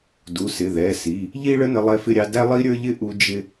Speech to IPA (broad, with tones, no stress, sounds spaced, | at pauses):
d u˩˧˩ s ɪ˩˧˩ ð ɛ˩˧˩ s i˩˧˩ | ʎ i˥ ɭ ə˥ n ə˥ lˠ ɛ˥ f ɪ˥ ɾʲ ɑ˥ d æ˥ lˠ i˥ ɾʲ ə˞˥ ʎ ɪ˥ ʔ u˥ d͡ʒ ɪ˥